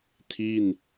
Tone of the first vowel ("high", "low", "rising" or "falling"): falling